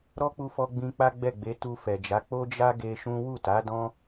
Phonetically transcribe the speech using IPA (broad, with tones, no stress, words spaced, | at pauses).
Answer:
ɾɔ˦k͡pu˧fɔ˧ ɡ͡bĩ˧k͡pa˦ɡ͡bɛ˦˨ɡ͡be˨˦ tu˧fɛ˨d͡ʒa˨˦ k͡po˦d͡ʒa˦ ɡe˧ʃũ˦ wu˦˨ta˨˦dɔ̃˦